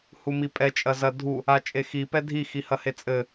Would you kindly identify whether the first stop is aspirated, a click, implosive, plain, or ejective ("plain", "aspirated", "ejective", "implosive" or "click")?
ejective